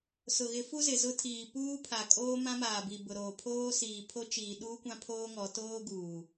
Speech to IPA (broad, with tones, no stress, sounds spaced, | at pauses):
s ʊ˨ ɣ ɪ˨˦ f u˦ z ɪ˨ z ʊ˦ tʰ iː˨ p uː˦ pʰ a˨ kʼ oː˦ m ã˦ m aː˨ b i˨ b ʊ˨ ɾ oː˨ pʰ oː˦ s iː˨ pʰ o˦ t͡ʃ iː˨ ɗ uː˦ kʷ ã˦ pʰ oː˦ ŋ ɔ˨˦ t oː˦ ɡ uː˨